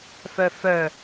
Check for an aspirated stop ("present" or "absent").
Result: absent